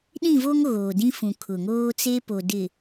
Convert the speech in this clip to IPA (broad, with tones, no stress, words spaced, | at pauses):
ɗĩ˦˨vo˦ŋ ɣoː˨dĩ˦fũ˨ kʰʊ˨ŋoː˦t͡se˦ po˨dɪ˨